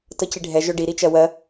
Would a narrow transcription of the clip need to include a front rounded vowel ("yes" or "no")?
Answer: yes